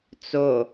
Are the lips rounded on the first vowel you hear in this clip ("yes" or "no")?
yes